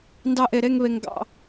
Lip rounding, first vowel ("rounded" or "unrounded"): unrounded